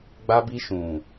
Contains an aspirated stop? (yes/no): no